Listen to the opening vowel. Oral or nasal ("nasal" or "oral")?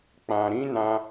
nasal